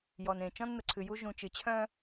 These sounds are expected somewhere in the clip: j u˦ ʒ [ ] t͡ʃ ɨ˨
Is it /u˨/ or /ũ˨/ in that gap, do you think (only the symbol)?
ũ˨